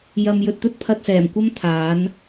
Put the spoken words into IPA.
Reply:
j ɐ˨ m j ɵ˨ t̚ t̪ ɵ˥ t̚ pʰ ɐ˧ t̚ s ɛː˨˩ m kʷ ɐ˥ m t̪ʰ aː˨˥ n

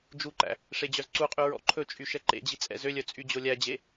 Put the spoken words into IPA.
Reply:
d͡ʒ u ǃ æ̰ | ʂ e d͡ʑ œ z ǀ u qʼ y ɹ ɔ̰ ǃʰ ɵ t͡ʃʼ y ʃ ɛ ǃ ḛ d͡ʑ i t͡sʼ ɛ̰ z ø lʲ œ t͡sʼ y d͡ʑ o lʲ æ d͡ʑ e

